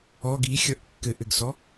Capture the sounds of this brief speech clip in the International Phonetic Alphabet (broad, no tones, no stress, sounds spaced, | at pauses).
ɔ ɡ i xʲ ʌ ʔ kː ɘ ʔ ɘ ɡ s ɔ